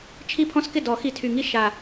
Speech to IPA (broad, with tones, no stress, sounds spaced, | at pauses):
t͡ʃʰ i˦ pʰ ɔ̃˦ s k ɪ˥˩ d ɔ˨˩˦ x i˨˩ tʰ y˨˩ ŋ i˦ ʃ a˨˩